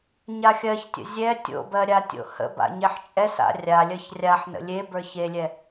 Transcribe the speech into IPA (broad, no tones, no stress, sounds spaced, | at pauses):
ɲ a xʲ ɜ ç tʲ ə̰ zʲ ɛ tʲ o̰ b ɜ ɾʲ a tʲ o̰ h ə̰ b a̰ ɲ e ħ t͡ʃʼ ɛ s a̰ rʲ a lʲ ɜ ç rʲ a ħ n ə̰ lʲ e b ə˞ ç e lʲ ɛ